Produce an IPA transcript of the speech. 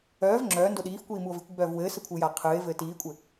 œː v ŋ͡ǁ œː n d o ɗ iː f kʷ iː m u o̯ v i kʷ ɡ͡b œː v w ɘː s ɘ kʷʰ ɨː j a qʰ ɨː e̯ v ɘː t iː kʷʼ ɘ

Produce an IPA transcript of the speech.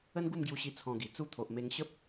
ə˦ n ɡ u˥˧ m ɡ j u˧ ɕ i˧ t͡sʰ ɔ̃˧ ɡ i˨˩ t͡s u˥˧ t̪ʰ o˨ ʔ m e˧ ŋ ɕ ə˦ p̚

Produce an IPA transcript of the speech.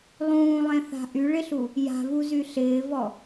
lˠ ũː lˠ ẽ θ a̤ ʔ y ɭ ɪ ɬ u | j a̤ v u z y ɬ ɪː v ɔ

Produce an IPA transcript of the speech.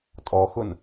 tʼ ɔ x ʊ n

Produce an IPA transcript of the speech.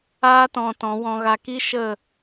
aː˦ t ɔ̃˧ t ɔ̃˨˦ w ɔ̃˧ ɣ a˧ k i˦ ʃ ə˦˨

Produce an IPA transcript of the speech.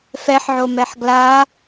f ɛ ħ ʕ o m ɛ ħ ɡ l a

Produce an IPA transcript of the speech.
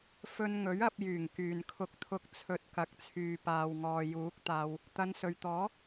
f ɵ˧ n ŋ ɵ˨˥ ɥ ɐ˧ p̚ j yː˨˩ ŋ k yː˨ n kʰ ʊ˧ k̚ t̪ʰ ʊ˧ k̚ t͡sʰ ɵ˨˥ t̚ k ɐ˨ k̚ t͡sʰ yː˨ p aː˨ w ŋ ɔː˨ j uː˨˥ k̚ t̪ aː˧ w | t̪ ɐ˨˧ n s ɵ˨ ɥ t̪ ɔː˨˥

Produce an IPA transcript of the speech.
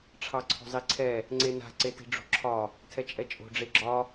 ʈ͡ʂʰ ɑ ǀʰ o̤ zˤ i ǀʰ ɛ | ŋ͡ǀ e n a̤ ǀ e t i̤ ɖ͡ʐ o̤ ǁʰ ɒ | tʰ ɛ t͡ʃʼ ɛ t͡ʃʼ o̤ ɖ͡ʐ e ɡ͡ǁ ɒ

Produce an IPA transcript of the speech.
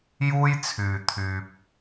j uː˥ j t͡sʰ yː˧ t̪ʰ yː˧ p̚

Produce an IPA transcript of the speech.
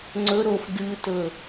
ŋ͡ǀ ɵ ɾ o f d ɨ t ɵ

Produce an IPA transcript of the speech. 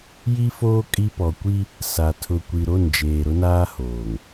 j i˦ f oː˦ kʼ i˦ p ɔ˨ kʷ i˦ | s a˨ tʰ ʊ˨ kʷ i˨ ɾ o˦˨ n d͡ʒ eː˨ ɾ ʊ˦ n aː˦ h oː˨ ŋ

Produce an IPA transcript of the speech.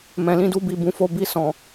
m ɛ̃˨ l ĩ˧ d u˧ b i˨ b ũ˧ f o˧ b i˧ s ɔ̃˨

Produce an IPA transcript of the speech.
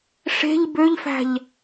ʂ e̤ ʎ b ø ʎ f æ̤ ʎ

